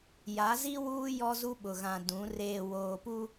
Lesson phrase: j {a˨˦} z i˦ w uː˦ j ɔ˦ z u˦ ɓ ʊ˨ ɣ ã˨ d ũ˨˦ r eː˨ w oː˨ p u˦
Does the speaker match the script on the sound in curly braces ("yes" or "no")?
yes